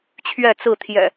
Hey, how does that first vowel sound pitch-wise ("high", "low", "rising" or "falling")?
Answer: falling